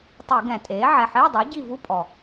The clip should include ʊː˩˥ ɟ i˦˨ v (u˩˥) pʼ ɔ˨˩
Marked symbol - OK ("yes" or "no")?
no